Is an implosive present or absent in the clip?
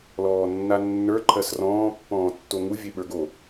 present